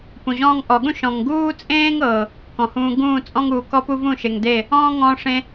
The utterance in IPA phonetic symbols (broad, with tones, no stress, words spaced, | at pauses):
pũ˨ʑɔ̃ː˦ŋ ʔɔ˨ɠũ˦ ʃɔ̃˨ŋ ɡuː˦t͡sʼẽː˦ŋɤ˨ | kɔ̃˨hũː˧ ɡũː˦˨t͡sʼɔ̃˦ŋuː˨ kɔ˦pu˦vũ˦˨ ʃe˨ŋde˦˨ | ɔ̃ː˦ŋɔ̃ː˧ʂẽ˧